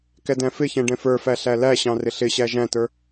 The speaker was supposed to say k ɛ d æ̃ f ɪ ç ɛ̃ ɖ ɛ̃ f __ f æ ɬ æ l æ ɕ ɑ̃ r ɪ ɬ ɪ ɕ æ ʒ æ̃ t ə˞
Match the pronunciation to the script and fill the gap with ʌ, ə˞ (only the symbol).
ə˞